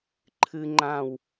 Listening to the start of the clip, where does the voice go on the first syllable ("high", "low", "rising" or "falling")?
high